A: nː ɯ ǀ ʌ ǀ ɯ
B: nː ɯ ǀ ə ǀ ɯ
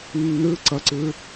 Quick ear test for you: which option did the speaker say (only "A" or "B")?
A